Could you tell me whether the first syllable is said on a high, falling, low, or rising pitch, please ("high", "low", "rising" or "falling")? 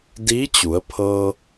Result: rising